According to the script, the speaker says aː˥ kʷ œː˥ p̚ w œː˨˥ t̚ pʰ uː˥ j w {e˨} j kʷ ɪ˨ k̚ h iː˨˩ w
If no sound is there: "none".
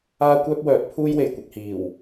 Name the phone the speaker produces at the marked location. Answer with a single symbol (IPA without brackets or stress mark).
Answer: e˨